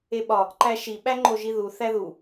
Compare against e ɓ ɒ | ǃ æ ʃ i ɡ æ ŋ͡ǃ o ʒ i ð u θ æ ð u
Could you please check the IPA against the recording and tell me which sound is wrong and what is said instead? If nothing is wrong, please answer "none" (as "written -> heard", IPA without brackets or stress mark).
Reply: ɡ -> ɓ